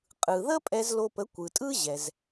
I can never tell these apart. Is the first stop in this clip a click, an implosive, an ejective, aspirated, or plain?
ejective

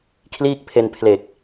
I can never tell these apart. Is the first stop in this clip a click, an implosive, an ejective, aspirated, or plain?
aspirated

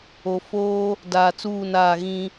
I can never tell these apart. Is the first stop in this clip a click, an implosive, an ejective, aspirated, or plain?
plain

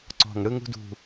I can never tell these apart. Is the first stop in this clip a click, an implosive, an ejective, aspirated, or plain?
click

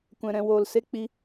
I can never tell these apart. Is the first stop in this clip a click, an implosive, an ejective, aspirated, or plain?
plain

